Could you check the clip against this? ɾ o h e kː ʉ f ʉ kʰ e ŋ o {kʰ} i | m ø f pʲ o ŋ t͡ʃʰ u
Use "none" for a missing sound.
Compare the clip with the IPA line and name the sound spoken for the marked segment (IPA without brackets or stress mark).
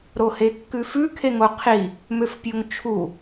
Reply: qʰ